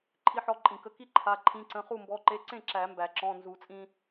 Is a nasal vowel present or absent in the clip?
present